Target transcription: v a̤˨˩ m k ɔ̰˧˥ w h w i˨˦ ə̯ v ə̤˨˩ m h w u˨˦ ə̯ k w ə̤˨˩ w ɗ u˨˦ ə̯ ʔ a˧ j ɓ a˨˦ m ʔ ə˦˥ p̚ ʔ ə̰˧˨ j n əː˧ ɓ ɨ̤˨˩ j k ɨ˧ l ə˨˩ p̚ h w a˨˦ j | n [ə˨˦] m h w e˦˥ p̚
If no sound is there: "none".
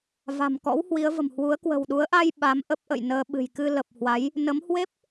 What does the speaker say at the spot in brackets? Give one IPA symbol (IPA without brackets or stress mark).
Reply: ə˨˦